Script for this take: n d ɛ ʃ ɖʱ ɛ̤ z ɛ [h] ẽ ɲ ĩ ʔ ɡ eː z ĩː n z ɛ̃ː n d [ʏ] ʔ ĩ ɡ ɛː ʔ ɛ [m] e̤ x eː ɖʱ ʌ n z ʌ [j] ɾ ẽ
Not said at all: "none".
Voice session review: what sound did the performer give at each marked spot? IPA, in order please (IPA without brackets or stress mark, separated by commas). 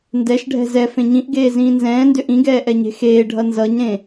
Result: f, ʏ, ɲ, ɲ